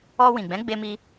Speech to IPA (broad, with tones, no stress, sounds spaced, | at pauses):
ɔ˧ w ĩ˨ ɡ͡b ɛ̃˨˦ ɡ͡b e˧ m i˧